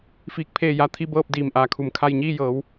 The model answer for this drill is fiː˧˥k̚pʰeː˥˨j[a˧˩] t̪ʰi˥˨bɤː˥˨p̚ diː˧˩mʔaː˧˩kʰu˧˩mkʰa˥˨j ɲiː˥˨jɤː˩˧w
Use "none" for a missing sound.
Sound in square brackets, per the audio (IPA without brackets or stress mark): a˥˨